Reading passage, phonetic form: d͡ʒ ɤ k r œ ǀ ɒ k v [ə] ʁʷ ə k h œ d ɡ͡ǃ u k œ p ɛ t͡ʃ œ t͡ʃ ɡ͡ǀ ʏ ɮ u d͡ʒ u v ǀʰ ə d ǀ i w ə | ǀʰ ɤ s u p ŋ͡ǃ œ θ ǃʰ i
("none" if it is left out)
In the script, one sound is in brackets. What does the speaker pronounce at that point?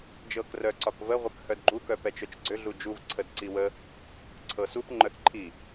ə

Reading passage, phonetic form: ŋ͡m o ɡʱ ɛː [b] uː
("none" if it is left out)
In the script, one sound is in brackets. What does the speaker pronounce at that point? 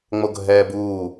b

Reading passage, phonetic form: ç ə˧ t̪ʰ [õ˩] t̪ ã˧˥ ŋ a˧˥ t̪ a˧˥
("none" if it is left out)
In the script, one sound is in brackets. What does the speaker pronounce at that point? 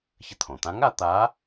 õ˩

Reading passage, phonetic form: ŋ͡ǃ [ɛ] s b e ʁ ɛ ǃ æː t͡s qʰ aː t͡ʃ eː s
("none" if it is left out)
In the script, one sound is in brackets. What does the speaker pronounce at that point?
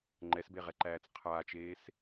ɛ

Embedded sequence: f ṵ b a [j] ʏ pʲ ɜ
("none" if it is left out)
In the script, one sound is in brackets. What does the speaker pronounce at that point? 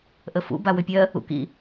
w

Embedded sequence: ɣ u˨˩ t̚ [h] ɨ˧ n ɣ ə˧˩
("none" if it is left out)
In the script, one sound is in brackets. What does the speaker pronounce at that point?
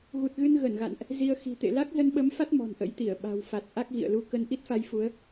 ɣ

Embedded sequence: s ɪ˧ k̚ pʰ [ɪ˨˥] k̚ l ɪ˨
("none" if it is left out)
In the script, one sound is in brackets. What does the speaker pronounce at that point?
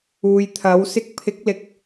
ɪ˨˥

